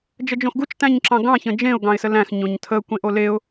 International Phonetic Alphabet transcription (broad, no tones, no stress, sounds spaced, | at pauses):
d͡ʒ ə d͡ʒ õ x ɡ u t͡ʃ t æ̃ ɲ ǁ ɑ̃ ɡ ɑ̃ ç ə̃ d͡ʒ ẽ ʊ̯ ɡ ɑ̃ ɪ̯ s ə l æ̃ x ɲ õ ɲ tʰ ə kʷ ẽ ʔ o l e ʊ̯